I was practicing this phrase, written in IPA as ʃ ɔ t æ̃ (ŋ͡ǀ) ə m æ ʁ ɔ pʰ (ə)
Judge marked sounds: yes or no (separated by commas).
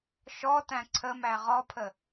no, yes